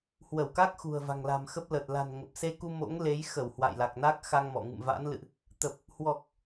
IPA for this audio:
hwə˧˩wka˦˥k̚ xṳ˨˩ə̯va̤˨˩ŋla̤˨˩mxə˦˥p̚ lə˨˩t̚ la̤˨˩nŋə˨˩p̚se˧ku˧ mo̰˧˥ŋle˨˦j xə˧˩w hwa̰˧˨jla˨˩k̚na˦˥k̚ xa˧ŋ mɔ̰˧˨ ŋɨ̰˧˨mva̰˧˥nlɨ̰˧˨ʔ | t̪ə˨˩p̚ | hwɔ˨˩k̚

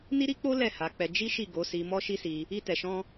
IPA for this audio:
ni˦ɾi˦k͡po˦ lɛ˦˨ha˨˦k͡pɛ˧ d͡ʒi˦ʃi˦˨ ɡo˨˦si˧ mɔ˦ʃi˦si˧ | i˦tɛ˧ʃɔ̃˦

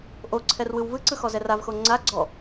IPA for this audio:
ʔoǀʰɛrwɯw vɯǀɯxɔzɛ ravxo ŋ͡ǀa ɡ͡ǀɔ

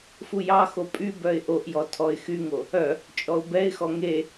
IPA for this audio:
fujɑxo pʼy bœɪ̯ʔoʔjɔ tʰɔɪ̯xyŋo | œ | t͡ʃʼɔʊ̯bɛɪ̯xɔ ŋe

